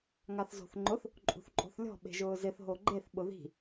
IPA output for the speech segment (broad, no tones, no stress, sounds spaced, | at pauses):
ŋ a θ z o̤ θ ŋ͡ǃ ʊ θ | ǃʼ ṳ θ ǃʼ o̤ θ lʲ ɔ̤ ɓ e̤ ʒ ʊː z ɪ θ ɦ o ɡ͡ǃ e θ ɓ ʊ ð i̤